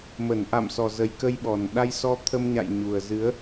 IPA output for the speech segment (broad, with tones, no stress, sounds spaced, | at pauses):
m ə˧˩ n ʔ a̰˧˨ m s ɔ˨˩ z ə˨˩ j k ə˧ j ɓ ɔ˨˩ n ɗ a˧ j s ɔ˧ t̪ʰ ə˧ m ɲ a̰˧˨ j ɲ u˨˩ ə̯ z ɨ˨˦ ə̯